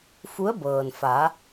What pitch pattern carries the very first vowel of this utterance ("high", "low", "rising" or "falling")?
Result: rising